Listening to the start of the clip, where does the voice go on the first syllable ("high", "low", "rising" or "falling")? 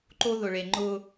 high